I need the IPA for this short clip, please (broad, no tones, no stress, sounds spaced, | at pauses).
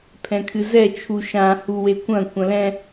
pʰ ɛ̃ kʰ ɨ z ɛ t͡ʃʰ u ʃ ã h u w e kʷ ɐ̃ kʷ ɐ̃ l ɛ̃